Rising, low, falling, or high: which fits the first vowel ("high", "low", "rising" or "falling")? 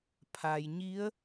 low